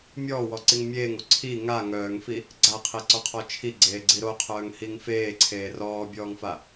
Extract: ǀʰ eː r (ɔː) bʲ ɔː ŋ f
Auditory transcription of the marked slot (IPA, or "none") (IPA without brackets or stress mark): ɔː